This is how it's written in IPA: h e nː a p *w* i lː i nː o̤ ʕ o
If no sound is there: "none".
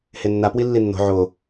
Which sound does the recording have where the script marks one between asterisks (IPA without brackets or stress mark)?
w